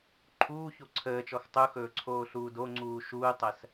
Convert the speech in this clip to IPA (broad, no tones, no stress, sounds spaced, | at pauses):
ǃʰ uː ç o ǀʰ əː t͡ʃ ɔ x tˤ u x ɵː ǀʰ oː ɬ uː d o ŋ͡ǀ uː ʃ uː tˤ ɜ s